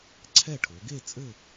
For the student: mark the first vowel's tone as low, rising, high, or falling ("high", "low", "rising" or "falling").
falling